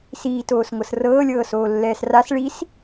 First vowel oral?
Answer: yes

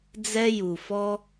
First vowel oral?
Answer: yes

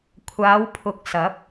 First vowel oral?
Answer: yes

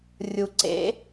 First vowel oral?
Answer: yes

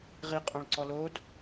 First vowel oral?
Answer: yes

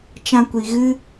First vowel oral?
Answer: no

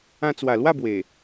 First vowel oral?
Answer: no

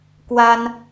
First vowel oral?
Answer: yes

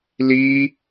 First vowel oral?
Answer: yes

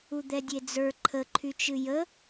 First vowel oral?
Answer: yes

